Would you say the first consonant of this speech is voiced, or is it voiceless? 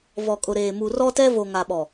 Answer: voiced